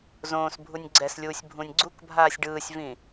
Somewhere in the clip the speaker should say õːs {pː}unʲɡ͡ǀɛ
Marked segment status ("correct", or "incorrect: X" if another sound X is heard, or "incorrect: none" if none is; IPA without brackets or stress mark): incorrect: bʱ